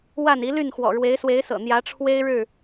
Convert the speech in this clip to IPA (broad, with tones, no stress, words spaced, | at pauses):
wa˥˨n i˨˦ly˥˨nxwɔ̰˨˩ ɻwe˨˦ɪ̯swe˨˦ɪ̯sɤ̰˨˩ n̪jä˨˦ʈ͡ʂʰwe˦ɪ̯ ɻɻ̩˥˨